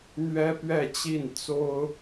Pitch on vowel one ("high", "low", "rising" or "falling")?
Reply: high